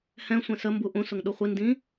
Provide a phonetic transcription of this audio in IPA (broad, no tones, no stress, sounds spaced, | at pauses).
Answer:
h ɛ̃ sʷ ɛ̃ s ə m b u ʔ ũ s ʊ ŋ ɗ u χʷ i n d ĩ